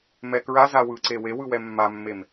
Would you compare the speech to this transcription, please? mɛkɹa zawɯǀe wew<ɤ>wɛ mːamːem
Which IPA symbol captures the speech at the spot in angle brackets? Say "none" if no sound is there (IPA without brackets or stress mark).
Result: ɯ